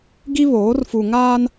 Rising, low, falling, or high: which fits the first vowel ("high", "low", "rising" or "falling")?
high